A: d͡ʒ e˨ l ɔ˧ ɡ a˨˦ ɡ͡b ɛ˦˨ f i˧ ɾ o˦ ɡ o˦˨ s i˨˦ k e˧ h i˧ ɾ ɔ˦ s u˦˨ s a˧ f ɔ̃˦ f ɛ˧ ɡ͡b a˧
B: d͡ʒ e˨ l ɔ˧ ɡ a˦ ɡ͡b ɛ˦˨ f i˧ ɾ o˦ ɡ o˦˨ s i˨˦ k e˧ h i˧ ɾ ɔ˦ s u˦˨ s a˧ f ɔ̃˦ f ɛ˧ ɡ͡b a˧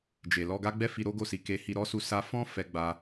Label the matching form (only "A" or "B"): B